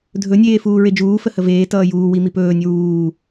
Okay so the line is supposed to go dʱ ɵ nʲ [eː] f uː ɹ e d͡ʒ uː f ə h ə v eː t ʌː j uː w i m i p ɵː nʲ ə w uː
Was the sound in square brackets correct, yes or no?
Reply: yes